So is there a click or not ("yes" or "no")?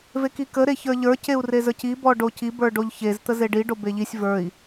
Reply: no